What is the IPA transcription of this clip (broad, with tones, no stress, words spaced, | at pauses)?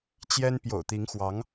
t͡ɕjɛ˥n pjo̰˨˩ʊ̯t̪i˧˥ŋxwɑ˧˥ŋ